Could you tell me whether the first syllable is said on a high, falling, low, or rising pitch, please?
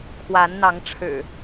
rising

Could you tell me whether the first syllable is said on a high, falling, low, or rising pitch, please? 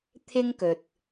high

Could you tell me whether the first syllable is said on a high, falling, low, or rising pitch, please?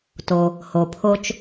low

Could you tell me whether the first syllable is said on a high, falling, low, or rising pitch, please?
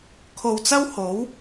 low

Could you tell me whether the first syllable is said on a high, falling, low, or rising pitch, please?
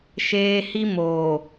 high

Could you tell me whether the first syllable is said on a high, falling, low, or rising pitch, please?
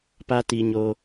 high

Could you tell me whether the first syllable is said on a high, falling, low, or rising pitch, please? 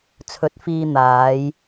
rising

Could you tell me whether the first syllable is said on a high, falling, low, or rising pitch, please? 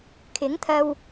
rising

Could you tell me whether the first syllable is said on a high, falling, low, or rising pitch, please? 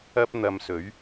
high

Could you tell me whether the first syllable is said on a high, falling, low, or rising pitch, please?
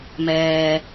low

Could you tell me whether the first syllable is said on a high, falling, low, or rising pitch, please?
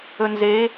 low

